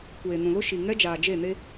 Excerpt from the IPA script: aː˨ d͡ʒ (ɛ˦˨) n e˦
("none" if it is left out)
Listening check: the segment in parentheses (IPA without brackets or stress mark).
e˦˨